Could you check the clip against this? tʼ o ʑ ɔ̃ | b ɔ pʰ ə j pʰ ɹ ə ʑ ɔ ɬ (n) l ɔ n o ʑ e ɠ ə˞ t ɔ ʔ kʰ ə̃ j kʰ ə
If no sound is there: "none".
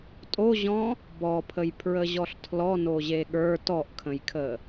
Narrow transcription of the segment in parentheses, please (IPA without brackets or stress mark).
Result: tʰ